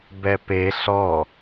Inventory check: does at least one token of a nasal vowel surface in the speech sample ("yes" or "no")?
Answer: no